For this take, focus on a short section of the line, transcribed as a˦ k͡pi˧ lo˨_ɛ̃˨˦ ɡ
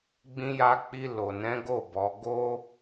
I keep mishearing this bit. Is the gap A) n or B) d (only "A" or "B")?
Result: A